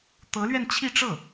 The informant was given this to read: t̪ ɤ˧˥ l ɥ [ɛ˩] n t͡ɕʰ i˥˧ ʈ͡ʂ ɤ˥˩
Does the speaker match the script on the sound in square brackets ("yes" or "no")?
no